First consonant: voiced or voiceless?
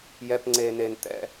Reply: voiced